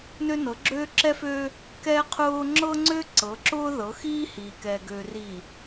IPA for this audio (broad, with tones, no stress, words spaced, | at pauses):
nø˦nɤ˨˦ɡ͡ǁøː˦ ǁɛ˦føː˦ | kɛ˦qʰʊː˦ ŋ͡ǁɤ˦ŋ͡ǀø˦ ǀɤ˨˦ǁʊː˦ðɤ˨˦ xiː˦hiː˨kɛː˨ɡøː˨ riː˨